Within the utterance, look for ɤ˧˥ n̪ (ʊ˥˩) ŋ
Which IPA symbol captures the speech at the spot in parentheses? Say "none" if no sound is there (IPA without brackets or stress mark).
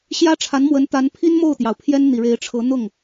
ʊ˥˩